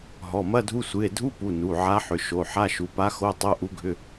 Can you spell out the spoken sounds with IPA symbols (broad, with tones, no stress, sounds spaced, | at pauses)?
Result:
ɦ ɔ˩˧˩ m ɐ˧˥˧ dʱ u˧˥˧ sʷ ɨ˩˧˩ e̯ dʱ u˧˥˧ p u˩˧˩ n u˩˧˩ ʕ a˧˥ ħ ʏ˩˧˩ ʃ o˩˧˩ ħ a˧˥˧ ʃ u˩˧˩ p a˧˥ x o˧˥˧ tˤ o˧˥˧ ʔ u˧˥ ɡʱ ʏ˧˥˧